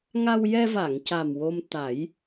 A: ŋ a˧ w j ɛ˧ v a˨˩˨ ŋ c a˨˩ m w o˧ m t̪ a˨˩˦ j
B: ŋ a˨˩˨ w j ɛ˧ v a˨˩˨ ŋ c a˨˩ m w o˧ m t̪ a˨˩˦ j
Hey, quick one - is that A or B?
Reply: A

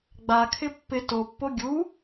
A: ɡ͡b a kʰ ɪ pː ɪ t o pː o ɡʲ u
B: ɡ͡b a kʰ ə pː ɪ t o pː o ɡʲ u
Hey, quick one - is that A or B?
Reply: A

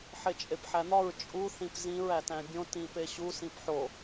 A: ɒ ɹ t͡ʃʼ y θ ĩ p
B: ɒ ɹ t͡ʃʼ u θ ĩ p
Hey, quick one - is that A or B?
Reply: B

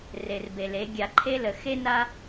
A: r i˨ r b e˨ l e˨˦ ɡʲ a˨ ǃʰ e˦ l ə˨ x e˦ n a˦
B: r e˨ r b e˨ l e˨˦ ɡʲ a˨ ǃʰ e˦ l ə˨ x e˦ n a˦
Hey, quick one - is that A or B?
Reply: B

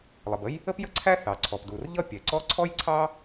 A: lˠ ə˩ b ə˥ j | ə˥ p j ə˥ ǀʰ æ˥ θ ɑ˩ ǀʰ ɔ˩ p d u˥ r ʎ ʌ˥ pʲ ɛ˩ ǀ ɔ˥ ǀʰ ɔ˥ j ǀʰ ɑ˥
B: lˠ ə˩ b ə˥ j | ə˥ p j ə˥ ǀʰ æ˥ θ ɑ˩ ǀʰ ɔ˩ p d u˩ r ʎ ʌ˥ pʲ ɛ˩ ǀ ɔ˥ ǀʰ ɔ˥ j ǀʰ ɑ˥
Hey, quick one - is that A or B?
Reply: B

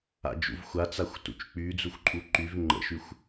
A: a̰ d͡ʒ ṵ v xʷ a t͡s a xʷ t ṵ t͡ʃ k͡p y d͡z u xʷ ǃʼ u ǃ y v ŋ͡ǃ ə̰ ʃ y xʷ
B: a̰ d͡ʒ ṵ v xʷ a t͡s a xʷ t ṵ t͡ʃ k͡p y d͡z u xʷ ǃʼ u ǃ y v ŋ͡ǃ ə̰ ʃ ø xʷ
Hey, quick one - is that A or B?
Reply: A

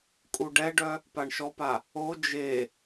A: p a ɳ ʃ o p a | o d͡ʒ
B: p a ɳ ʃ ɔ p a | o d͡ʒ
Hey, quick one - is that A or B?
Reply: B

